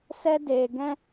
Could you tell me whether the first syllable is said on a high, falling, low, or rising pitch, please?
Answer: high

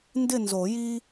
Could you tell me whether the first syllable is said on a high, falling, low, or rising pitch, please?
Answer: falling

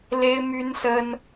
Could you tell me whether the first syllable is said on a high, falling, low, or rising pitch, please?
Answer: high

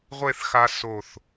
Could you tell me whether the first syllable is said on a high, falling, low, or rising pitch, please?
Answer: falling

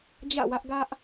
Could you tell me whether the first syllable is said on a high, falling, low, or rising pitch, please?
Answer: falling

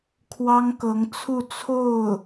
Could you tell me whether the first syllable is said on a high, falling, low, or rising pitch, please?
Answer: high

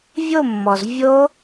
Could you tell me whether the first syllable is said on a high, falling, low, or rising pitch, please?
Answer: falling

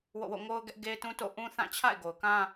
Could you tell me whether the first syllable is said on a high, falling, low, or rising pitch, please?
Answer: falling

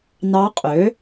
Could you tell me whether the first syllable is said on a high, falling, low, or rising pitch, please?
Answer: rising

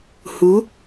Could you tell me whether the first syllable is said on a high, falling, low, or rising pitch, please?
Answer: rising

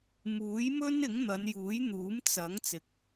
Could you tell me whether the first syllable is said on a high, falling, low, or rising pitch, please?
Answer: rising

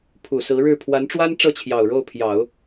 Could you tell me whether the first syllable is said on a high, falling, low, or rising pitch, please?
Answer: low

